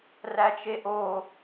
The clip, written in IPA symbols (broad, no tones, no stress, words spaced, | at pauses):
ræt͡ʃeʔo